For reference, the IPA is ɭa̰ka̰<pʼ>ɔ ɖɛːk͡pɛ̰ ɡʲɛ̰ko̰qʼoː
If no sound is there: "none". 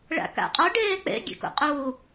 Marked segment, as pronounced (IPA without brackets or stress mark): qʼ